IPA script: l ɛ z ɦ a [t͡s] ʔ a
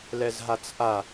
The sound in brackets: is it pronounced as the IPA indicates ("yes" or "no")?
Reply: yes